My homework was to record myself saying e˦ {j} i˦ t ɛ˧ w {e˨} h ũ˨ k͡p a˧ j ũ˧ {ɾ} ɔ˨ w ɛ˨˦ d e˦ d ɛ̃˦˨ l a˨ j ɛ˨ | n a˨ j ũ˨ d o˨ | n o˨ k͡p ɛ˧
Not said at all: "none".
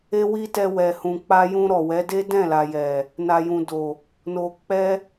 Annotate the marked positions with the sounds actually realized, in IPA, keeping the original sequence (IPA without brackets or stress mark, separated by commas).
w, ɛ˨, ɾ